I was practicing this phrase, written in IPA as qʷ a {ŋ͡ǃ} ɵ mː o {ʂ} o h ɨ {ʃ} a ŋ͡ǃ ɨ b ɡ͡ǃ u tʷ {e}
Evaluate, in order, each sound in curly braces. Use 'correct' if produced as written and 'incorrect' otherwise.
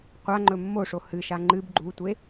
correct, correct, correct, correct

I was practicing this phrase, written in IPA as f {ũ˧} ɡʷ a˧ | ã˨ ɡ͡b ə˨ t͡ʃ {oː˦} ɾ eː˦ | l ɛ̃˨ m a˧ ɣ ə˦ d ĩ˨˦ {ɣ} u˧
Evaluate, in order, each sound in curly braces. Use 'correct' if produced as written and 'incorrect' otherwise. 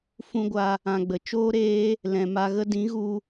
correct, correct, correct

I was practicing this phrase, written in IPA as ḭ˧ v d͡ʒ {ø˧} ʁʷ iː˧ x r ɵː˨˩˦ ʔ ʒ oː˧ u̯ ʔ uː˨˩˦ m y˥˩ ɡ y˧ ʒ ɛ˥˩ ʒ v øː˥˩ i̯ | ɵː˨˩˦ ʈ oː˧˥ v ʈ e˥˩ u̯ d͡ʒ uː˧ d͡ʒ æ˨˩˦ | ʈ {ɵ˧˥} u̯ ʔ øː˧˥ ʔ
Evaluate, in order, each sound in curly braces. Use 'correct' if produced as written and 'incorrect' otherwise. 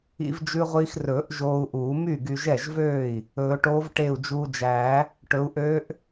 incorrect: ʉ˧, incorrect: ɵ˩˥

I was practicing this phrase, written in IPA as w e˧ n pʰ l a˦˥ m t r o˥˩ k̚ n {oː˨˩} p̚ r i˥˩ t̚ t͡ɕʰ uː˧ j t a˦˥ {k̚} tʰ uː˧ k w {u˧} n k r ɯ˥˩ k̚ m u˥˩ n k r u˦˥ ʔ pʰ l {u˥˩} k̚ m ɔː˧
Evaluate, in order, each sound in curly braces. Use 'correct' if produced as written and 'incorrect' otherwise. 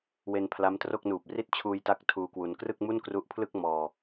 incorrect: uː˨˩, correct, correct, incorrect: ɯ˥˩

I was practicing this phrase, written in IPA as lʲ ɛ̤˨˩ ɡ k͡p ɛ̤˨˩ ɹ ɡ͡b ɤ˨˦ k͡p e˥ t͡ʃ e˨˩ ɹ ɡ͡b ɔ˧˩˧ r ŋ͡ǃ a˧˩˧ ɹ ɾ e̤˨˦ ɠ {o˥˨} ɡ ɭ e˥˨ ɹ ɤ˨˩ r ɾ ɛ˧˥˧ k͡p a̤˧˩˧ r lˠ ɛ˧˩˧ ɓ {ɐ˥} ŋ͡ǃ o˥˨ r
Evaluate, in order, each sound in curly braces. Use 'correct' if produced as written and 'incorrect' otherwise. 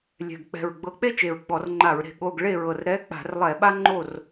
incorrect: o˧˥˧, incorrect: a˥

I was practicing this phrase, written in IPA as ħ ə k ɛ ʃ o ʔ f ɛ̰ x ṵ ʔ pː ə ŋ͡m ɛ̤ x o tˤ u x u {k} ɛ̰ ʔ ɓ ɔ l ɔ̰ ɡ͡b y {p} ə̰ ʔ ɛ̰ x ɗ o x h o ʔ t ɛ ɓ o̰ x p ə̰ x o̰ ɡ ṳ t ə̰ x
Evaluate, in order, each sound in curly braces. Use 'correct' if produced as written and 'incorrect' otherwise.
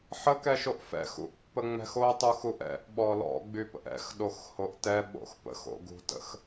incorrect: ʔ, correct

